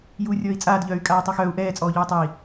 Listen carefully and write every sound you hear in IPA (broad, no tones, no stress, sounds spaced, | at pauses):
j uː rʲ ɔː i̯ t͡sʼ aː d ʎ œː y̯ kʼ aː y̯ tˤ œ x œː u̯ ʔ ɛː t͡sʼ ɔː ʎ yː tˤ ɛ i̯